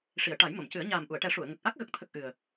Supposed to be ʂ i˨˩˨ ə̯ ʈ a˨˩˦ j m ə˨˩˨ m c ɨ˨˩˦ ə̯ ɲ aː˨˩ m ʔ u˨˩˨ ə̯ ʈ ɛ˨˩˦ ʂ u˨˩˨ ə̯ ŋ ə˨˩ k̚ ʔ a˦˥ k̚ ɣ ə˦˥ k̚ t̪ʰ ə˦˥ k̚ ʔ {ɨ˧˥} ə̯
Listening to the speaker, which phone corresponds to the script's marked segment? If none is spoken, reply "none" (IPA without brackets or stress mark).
ɨ˨˩